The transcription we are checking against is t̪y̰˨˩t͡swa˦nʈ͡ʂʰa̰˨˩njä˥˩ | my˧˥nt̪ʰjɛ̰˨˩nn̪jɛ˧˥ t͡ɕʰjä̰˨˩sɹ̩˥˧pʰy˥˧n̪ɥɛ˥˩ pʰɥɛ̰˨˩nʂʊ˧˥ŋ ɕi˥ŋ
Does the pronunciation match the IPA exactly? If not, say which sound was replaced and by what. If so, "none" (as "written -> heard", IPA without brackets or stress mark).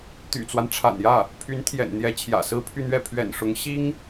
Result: m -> pʰ